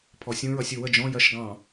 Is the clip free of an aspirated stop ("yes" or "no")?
no